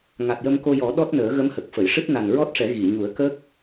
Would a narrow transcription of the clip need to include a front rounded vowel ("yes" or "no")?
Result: no